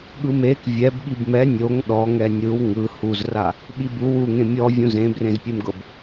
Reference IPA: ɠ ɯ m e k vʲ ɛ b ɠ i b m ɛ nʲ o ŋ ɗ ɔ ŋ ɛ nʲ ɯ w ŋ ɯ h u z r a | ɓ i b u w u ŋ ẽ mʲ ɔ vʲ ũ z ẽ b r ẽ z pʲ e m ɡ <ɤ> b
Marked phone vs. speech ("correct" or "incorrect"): correct